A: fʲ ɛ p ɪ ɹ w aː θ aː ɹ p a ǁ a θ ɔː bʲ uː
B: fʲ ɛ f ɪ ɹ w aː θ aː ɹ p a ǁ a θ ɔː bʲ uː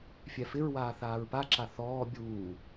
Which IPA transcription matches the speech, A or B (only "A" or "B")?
B